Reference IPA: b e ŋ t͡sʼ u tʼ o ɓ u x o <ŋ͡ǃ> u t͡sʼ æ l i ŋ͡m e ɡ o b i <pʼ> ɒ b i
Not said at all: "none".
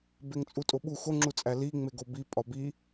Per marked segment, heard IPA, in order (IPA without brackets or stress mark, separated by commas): ŋ͡ǁ, pʼ